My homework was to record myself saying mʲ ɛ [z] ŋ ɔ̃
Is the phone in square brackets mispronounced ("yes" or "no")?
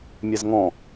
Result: no